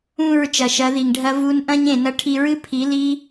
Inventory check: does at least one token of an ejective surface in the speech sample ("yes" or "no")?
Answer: no